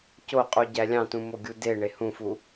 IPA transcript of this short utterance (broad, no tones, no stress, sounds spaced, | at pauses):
c o qʼ u ɟ æ lʲ ɑ̃ t ũ m o ɡʲ u d e ɳ e h ũ f u